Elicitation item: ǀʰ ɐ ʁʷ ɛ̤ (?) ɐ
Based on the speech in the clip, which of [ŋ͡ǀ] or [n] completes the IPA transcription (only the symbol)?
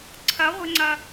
ŋ͡ǀ